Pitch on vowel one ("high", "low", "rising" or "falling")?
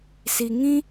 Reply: low